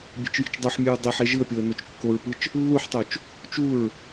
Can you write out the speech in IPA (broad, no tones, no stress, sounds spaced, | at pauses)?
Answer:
bʲ e̤ t͡ʃ j i̤ t͡ʃ dˤ u ħ mʲ ɯ ɹ dˤ e ħ e ʒ ɯ ə̯ pʲ o ə̯ n o t͡ʃ kː o ɹ p ɯ t͡ʃ | lː u ħ tˤ o t͡ʃ | t͡ʃ u ɹ